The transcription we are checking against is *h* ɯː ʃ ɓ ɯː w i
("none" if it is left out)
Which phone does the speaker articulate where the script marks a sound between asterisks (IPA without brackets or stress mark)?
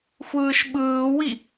xʷ